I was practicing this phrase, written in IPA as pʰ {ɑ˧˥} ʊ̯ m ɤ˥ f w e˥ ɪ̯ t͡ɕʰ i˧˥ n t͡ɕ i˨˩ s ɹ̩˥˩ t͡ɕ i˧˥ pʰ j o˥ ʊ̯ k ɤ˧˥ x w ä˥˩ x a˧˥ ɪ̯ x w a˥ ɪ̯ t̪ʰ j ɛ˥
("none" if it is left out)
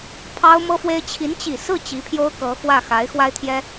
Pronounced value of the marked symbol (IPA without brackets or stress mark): ɑ˥